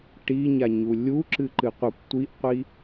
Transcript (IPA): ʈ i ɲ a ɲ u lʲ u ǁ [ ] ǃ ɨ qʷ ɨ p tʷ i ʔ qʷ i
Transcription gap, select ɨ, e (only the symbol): ɨ